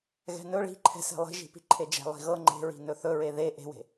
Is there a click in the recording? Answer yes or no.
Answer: yes